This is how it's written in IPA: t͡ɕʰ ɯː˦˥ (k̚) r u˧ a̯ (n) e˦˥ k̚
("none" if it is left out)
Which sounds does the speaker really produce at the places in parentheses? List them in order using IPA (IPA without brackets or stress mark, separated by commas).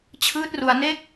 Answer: t̚, n